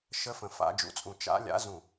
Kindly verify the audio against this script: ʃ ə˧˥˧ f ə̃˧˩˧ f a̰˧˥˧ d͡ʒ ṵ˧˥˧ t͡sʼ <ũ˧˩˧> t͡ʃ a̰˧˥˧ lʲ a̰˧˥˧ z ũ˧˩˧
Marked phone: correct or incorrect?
correct